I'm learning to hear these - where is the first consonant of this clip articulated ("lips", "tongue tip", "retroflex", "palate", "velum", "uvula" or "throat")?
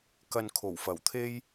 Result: velum